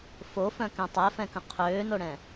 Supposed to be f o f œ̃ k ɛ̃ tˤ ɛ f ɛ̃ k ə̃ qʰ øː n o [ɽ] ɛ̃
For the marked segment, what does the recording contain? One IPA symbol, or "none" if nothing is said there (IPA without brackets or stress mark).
ɽ